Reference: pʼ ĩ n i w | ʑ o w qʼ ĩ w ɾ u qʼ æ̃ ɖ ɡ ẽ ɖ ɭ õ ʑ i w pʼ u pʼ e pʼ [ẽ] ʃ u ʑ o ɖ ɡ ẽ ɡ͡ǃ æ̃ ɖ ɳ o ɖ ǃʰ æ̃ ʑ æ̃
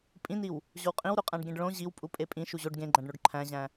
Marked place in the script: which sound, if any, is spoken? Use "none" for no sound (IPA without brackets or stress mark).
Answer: ĩ